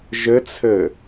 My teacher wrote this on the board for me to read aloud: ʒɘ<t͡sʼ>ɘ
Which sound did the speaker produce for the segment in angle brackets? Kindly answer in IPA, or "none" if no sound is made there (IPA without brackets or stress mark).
t͡sʰ